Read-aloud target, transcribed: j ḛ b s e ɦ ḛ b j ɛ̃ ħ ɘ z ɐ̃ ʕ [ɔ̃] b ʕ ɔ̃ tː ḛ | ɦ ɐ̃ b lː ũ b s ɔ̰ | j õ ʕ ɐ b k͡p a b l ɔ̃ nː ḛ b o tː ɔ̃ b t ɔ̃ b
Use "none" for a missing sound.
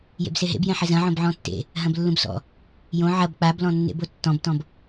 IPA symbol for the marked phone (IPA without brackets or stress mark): õ